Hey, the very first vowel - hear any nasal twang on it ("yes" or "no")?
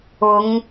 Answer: no